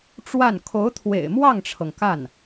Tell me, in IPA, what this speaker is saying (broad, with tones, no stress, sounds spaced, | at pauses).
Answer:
ʈ͡ʂ w a˥˩ n kʰ o˧˥ ʊ̯ t̪ʰ w ḛ˨˩ ɪ̯ m w ɑ˥˩ ŋ ʈ͡ʂʰ ɤ˩ ŋ k a˥˩ n